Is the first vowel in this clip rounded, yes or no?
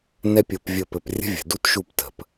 no